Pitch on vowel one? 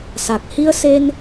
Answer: low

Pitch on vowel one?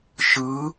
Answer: rising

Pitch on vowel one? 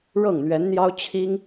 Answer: falling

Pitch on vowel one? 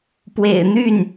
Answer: low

